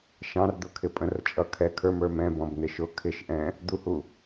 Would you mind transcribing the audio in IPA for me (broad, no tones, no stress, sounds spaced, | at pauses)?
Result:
ʃ ɑ̃ r d̪ ʊ kʰ ɪ pʼ ə̃ r t͡ʃʼ ʌ kʰ ɛ kʰ ə˞ m ə˞ m ɛ̃ b ɔ̃ b n̪ ɪ ʃ ʊ kʰ ɪ ʃ ʔ ɛ̃ | d̪ u h u